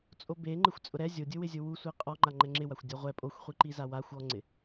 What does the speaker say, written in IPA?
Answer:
t͡sʼ o b e ŋ͡ǃ ɪ xʷ t͡sʼ ʊ ɾ ɛ zʲ o dʲ ʊ w ɪ zʲ ʊ w u sʷ i qʼ ɔ ŋ͡ǃ a ŋ͡ǃ ɛ ŋ͡ǁ ɪ w a xʷ dʲ ɔ ʁʷ ɛ pʼ o xʷ χʷ i ǃ i z a w a xʷ ɔ ŋ͡ǀ ɪ

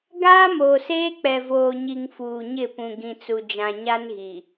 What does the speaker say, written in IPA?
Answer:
ɡ aː˦ m oː˨ s eː˦ k͡p ɛ˨ v oː˨ ɲ i˨ ŋ f uː˨ ɲ ɪ˦˨ p ũ˨ ɡ ĩ˨ t͡s u˨ d͡ʒ ã˨ ɲ a˦ n ɣ i˨

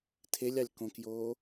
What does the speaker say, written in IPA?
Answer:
tʰ e lʲ ɑ lʲ k õ k j oː

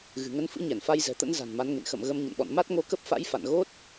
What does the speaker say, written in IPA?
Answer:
ɣ ɨ̤˨˩ ŋ ə˧ n f ɨ̰˧˥ ɲ ɛ˧˩ n f a˧ j z ɛ̤˨˩ t̪ ə̰˧˥ n z a̤˨˩ n m a˨˦ n ŋ ḛ˧˨ n x ə̰˧˨ m ɣ ə˧ m ɲ ə̰˧˨ n ɓ ɔ̰˧˨ n m a˦˥ t̚ ŋ o˧ k ə˦˥ p̚ f a̰˧˥ j f a̰˧˨ n ɣ o˦˥ t̚

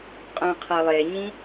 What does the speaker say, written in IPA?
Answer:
qʼ œ̃ qʰ ɤ lˠ e ɲ ĩ

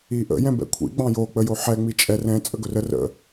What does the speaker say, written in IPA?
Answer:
i ʔ ə̰ j ɛ̃ b ɛ̰ kʷʰ ḭ ɡ͡b ɑ̃ j o k͡p ə j o ħ ɛ ŋ͡m i t͡ʃʼ ɛ r ɛ̃ t͡sʼ ə ɡ ɵ r ə r ə̰

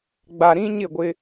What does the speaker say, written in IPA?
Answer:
ɡ͡b a˨ ɾ ĩ˦ ɲ ɪ˦˨ ɡʷ ɪ˦

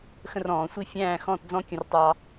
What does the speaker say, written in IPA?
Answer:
x ə̃˥˧ r ɔ̃ː˩˧ sʷ i˥˧ fʲ æ̃ː˥˧ x ɔ̃˥˧ t d͡z ɔ̃˥ kʲ ə̃˧ r tˤ ɑ˧

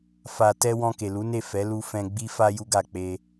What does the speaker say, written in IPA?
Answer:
f a˨ t ɛ˧ w ɔ̃˧ k e˨ l u˨˦ n e˦˨ f ɛ˨˦ l u˧ f ɛ̃˧ ɡ͡b i˦ f a˦ j u˦ ɡ a˦˨ k͡p e˧

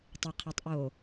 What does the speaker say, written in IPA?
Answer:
tˤ ɪ qʰ ɛ tˤ ʔ o

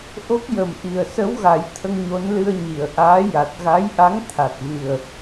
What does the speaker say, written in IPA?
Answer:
ʔ o˦˥ k̚ j ə˨˩ m ʔ i˨˩ ə̯ s ə˧˥ w ɣ a˨˩˦ j t̪ʰ ə˧ ŋ ɲ o˧˥ n l ɨ˧ ə̯ ɲ i˨˩˨ ə̯ ʔ aː˧˥ j a˨˩ t̚ ɣ a˧˥ j ʔ a˧˥ ŋ t̪ʰ a˨˩ t̚ v ɨ˨˩ ə̯

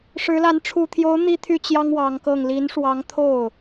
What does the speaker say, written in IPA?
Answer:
ʂ ɻ̩˧˥ l a˧˥ n ʈ͡ʂʰ u˨˩ t̪ʰ j o˧˥ ʊ̯ n̪ i˥ t̪ʰ y˥˩ t͡ɕ j ɑ˥ ŋ w ɑ˧˥ ŋ k ɤ˥˩ ŋ l i˧˥ n ʂ w ɑ˧˥ ŋ t̪ʰ o˥˩ ʊ̯

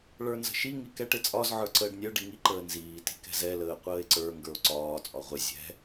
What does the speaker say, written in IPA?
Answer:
ɭ ə˞ n z ə̤ ʃ i ŋ i k ɛ ʈ ɪ t͡sʼ ɒ z ʕ ə˞ ǀ əː ɖ nʲ ə˞ ɖ i ŋ i ǃ əː n z iː t i̤ k ɛ̤ z ɛ l əː qʷ əː e̯ ǀ ə˞ ŋ ɡ ə˞ o̯ ǀ ɒː t͡sʼ ɒ ʁʷ ɪ zʲ ɛ̤

